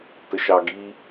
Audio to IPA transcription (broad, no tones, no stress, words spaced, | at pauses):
təʃɑɡi